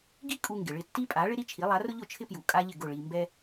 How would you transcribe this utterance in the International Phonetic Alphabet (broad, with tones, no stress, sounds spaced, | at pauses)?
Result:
ɡ i˥ kʼ u˧ ŋ ɡ ɪ˩ ɭ ɪ˥˩ tː i˥ pʼ a˩˥ ɭ ɪ˥ ɾ i˥ t͡ʃʰ i˩˥ lˠ a˩˥ r ʊ˥ ʎ ʊ˥˩ t͡ʃʰ ɪ˥ p j u˩ kʼ a˥ ʎ ɪ˥˩ ɡ ʊ˥˩ ɭ i˧ m b ɛ˥